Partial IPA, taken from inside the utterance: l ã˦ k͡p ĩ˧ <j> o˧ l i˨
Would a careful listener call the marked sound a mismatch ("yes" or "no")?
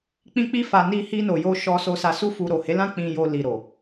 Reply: no